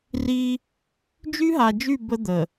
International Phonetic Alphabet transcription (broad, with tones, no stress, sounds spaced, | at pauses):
r i˦ | d͡ʒ y˦ ɦ a˨ d͡ʒ y˦˨ b ə˦ d̪ ə˨